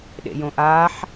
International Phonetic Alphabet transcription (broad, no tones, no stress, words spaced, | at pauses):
ɗḛjõʔaːħ